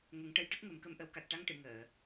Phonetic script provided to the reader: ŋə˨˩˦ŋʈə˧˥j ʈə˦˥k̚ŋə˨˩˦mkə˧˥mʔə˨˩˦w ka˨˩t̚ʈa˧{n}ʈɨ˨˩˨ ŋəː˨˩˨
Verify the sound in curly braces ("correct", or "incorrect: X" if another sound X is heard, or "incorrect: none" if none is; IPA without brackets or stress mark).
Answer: incorrect: ŋ